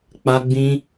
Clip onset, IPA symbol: k͡p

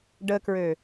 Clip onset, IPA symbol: ɖ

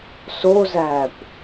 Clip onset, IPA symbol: s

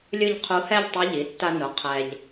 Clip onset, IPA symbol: lʲ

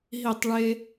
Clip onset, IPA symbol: ɦ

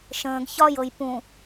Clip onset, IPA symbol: ʃ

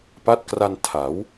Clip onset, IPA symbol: p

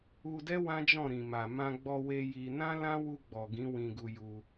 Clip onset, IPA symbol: u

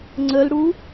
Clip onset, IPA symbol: ŋ͡ǀ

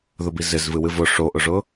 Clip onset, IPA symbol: ð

